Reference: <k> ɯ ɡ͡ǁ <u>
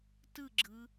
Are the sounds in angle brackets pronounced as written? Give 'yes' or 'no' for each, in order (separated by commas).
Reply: no, no